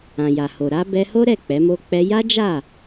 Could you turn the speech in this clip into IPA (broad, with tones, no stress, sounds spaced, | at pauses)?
ã˨ j a˨ h o˨ ɾ a˧ b ɛ˧ h o˦ ɾ ɛ˦˨ k͡p ɛ˨˦ m o˦ k͡p ɛ˧ j a˦ d͡ʒ a˦˨